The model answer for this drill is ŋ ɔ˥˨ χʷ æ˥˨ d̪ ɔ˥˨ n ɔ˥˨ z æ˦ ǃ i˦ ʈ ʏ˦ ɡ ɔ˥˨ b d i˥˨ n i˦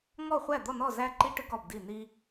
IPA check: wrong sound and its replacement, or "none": none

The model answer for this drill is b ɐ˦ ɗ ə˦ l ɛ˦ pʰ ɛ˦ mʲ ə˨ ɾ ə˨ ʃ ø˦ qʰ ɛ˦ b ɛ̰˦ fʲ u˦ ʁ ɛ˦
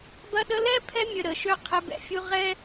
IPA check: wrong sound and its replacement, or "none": none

